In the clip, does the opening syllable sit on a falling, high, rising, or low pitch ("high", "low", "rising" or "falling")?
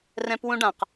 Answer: high